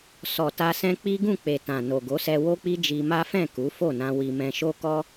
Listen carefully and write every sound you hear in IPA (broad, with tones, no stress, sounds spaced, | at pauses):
s ɔ˨ t a˧ s ɛ̃˦ k͡p i˦ ɡ ũ˦˨ k͡p e˨ t ã˨ n o˨ ɡ o˨˦ s ɛ˧ w o˦ k͡p i˦ d͡ʒ i˧ m a˦ f ɛ̃˦˨ k u˨˦ f o˦˨ n ã˧ w i˧ m ɛ̃˧ ʃ o˦ k ɔ˦